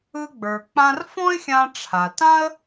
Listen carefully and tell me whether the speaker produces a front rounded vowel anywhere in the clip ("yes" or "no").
no